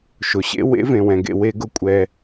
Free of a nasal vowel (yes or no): no